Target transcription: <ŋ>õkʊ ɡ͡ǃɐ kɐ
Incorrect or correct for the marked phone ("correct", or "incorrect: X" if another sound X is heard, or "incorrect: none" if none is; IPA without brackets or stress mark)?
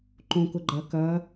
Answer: incorrect: ǃ